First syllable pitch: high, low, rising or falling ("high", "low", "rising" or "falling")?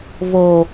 low